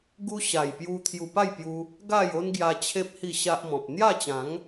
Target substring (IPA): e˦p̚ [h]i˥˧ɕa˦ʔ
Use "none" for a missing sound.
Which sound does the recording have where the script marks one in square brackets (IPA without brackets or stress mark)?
h